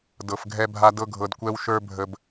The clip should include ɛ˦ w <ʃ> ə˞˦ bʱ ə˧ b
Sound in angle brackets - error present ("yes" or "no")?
no